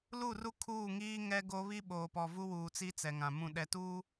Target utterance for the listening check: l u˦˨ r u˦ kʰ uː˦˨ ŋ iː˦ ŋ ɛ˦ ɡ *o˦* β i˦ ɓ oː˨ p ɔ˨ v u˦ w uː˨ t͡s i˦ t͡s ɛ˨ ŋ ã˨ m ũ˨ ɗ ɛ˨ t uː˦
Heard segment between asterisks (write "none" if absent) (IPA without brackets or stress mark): o˦